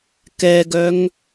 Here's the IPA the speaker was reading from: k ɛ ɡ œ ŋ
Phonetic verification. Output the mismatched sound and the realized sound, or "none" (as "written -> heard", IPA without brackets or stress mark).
none